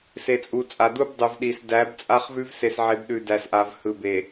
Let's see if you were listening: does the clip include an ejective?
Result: yes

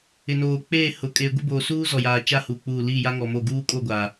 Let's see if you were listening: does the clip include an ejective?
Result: yes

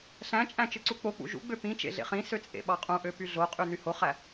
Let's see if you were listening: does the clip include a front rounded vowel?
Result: yes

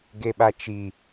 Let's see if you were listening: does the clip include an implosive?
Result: yes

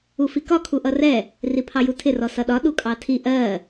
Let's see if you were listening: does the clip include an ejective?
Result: yes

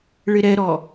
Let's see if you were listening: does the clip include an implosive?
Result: no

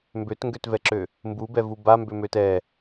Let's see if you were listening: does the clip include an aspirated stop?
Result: no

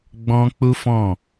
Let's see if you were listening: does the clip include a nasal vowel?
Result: yes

